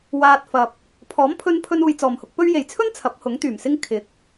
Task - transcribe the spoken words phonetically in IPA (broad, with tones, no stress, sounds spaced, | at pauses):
w aː˧ t̚ f ɐ˨ p̚ | pʰ ɔː˨˥ m pʰ ɵ˧ n pʰ ɵ˧ n uː˨ j t͡s ɔː˨˩ m h ʊ˧ k̚ p ɵ˥ ɥ j e˨˩ j t͡sʰ ɵ˥ n t͡sʰ ɐ˨˥ p̚ h ʊ˨˥ ŋ t̪ yː˨˩ m s ɪ˥ ŋ kʰ ɪ˨˥ k̚